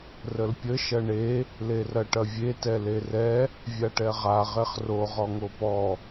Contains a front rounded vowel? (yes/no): no